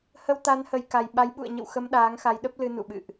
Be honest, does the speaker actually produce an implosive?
yes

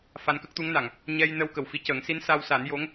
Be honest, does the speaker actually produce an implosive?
no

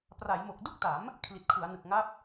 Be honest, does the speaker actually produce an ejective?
no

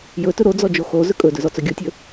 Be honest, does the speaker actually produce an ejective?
yes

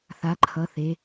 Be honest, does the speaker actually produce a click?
yes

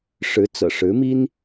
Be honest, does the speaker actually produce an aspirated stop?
no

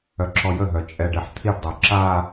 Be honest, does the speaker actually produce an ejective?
yes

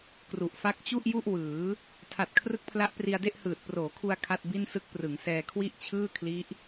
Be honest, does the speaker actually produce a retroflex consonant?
no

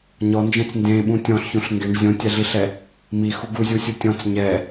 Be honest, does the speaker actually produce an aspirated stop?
no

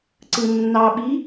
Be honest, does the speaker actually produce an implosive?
yes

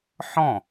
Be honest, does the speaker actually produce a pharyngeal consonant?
yes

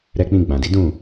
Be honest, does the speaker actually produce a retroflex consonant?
no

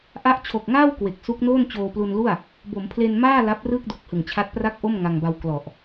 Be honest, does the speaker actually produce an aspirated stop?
yes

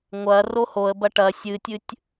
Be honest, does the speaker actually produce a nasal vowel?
no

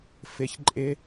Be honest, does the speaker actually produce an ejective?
yes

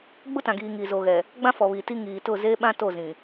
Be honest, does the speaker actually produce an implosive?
yes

